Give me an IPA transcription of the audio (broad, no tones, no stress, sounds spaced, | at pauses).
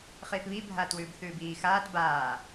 χ iː θ β i bʱ aː t w ʉː b θ ʉː b iː x aː t b aː